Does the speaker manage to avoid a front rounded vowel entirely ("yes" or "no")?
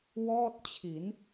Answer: yes